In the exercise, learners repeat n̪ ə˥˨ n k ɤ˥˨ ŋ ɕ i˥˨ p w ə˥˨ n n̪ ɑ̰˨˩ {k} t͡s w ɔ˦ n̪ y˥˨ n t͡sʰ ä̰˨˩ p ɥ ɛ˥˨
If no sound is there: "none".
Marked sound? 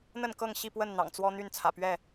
ŋ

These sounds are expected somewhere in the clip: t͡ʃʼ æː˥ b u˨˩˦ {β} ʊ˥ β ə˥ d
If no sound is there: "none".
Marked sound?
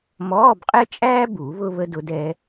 β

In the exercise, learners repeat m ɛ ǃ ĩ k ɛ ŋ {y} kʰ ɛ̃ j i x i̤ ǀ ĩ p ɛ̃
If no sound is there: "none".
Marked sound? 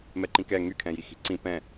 y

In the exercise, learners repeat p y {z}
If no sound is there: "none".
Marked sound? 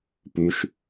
ʃ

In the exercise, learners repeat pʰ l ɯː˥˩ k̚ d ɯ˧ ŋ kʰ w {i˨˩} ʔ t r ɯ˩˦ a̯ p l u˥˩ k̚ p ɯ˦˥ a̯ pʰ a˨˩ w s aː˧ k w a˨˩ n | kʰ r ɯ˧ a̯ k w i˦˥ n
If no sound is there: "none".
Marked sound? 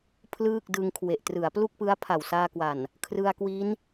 e˨˩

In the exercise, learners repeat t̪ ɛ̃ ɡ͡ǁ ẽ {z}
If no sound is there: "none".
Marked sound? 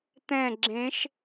ʃ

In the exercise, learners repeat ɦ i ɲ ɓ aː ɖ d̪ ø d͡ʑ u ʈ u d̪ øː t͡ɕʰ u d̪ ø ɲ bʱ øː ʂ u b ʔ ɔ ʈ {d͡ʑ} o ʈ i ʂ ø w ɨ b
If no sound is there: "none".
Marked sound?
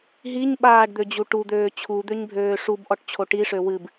t͡ɕʰ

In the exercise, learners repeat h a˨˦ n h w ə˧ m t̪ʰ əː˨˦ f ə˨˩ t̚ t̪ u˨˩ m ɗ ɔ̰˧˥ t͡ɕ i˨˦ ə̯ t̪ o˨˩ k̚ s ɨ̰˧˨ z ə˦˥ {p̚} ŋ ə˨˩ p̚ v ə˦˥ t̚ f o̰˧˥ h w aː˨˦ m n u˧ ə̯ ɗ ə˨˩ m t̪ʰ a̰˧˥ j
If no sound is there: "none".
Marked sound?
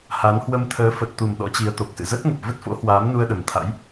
t̚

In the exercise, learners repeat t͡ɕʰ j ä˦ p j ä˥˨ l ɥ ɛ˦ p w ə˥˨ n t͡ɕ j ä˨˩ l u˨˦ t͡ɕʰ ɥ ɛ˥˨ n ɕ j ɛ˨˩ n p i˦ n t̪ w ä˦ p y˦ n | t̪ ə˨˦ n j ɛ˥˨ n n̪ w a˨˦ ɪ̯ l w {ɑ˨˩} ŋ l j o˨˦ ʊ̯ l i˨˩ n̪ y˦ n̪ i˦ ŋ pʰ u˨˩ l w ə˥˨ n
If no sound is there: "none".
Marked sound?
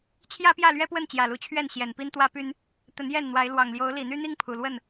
ɑ˨˩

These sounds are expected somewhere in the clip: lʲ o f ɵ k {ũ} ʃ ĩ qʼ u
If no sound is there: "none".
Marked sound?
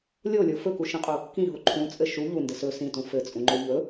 u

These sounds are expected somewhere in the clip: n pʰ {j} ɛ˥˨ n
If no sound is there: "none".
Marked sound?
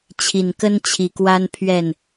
ɥ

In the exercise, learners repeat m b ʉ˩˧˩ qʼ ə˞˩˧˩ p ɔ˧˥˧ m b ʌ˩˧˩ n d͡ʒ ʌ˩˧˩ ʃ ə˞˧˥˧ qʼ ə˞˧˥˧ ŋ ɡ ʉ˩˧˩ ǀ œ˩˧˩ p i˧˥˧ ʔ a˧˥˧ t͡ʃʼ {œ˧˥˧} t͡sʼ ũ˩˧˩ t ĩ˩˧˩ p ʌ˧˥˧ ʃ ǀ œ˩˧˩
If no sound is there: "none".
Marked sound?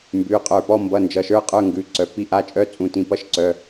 œ˧˥˧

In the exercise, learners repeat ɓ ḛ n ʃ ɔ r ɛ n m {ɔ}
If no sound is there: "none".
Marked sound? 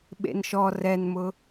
ʊ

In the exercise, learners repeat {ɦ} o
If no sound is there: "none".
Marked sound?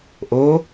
ʔ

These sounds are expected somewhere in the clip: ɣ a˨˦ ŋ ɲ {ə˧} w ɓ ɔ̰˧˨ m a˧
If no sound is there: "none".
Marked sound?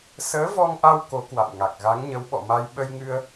ə˨˦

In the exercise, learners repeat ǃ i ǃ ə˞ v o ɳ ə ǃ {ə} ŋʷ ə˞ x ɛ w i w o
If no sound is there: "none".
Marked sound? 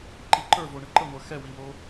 ə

